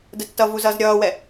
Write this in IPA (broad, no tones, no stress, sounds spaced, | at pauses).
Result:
d ə tː ʌ v u z ʌː z ɾʲ ʌː w ɛ